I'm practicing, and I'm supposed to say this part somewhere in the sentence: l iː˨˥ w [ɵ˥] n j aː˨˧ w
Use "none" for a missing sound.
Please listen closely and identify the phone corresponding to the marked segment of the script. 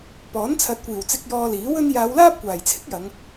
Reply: ɵ˥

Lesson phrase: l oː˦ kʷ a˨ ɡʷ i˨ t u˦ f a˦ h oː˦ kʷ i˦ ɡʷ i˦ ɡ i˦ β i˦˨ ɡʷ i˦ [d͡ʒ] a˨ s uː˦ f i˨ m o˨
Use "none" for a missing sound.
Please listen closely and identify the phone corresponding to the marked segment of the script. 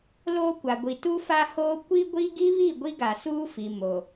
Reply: ɡ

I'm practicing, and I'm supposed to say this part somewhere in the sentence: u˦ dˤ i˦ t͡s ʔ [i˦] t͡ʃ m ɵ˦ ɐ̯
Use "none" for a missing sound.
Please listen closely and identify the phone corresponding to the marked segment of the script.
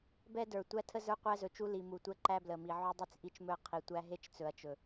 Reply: i˦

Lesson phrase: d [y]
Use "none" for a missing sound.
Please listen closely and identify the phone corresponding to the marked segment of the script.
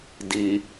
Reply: i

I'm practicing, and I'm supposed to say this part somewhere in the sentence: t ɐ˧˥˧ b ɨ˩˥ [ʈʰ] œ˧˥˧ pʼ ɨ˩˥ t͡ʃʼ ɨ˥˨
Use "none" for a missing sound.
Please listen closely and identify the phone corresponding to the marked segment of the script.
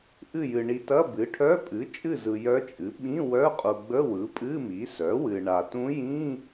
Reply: ʈʰ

